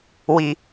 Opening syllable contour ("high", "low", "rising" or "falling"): low